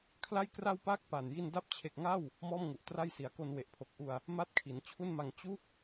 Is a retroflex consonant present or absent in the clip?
absent